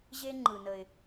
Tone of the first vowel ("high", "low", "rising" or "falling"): high